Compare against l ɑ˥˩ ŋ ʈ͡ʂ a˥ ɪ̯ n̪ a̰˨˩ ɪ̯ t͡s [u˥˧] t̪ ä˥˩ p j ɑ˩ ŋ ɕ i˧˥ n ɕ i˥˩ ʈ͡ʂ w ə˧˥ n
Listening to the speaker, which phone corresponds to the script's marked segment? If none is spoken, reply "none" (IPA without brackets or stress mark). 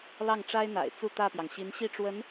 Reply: u˥˧